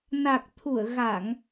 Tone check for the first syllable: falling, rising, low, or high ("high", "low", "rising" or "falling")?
low